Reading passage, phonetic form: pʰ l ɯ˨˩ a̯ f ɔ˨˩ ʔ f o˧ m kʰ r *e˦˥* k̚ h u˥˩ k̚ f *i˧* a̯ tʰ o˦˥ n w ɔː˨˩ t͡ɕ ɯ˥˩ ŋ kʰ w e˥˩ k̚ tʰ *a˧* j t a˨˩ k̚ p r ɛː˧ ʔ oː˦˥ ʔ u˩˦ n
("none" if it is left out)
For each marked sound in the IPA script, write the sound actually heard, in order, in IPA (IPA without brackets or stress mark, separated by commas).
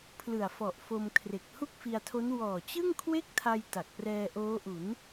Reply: e˨˩, i˧, a˧